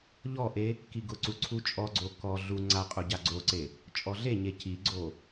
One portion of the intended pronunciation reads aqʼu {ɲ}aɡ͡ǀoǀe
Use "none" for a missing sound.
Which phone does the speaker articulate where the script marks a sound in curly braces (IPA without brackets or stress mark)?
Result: ɟ